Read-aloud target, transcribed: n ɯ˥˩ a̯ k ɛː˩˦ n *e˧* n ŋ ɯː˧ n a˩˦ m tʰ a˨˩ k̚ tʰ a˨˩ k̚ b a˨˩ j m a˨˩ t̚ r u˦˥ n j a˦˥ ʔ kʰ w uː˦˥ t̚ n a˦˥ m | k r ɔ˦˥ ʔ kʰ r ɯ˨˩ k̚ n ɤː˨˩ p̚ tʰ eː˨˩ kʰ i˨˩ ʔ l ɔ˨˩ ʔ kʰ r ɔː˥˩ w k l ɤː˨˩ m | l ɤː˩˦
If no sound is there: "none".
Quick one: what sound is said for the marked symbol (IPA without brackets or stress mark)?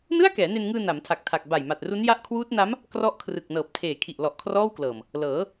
e˧